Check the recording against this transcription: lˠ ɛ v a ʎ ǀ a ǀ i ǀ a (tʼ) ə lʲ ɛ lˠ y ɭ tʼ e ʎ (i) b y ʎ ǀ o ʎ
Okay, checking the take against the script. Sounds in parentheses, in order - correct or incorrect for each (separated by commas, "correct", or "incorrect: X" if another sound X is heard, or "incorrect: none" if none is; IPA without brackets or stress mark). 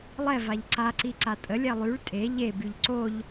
correct, incorrect: e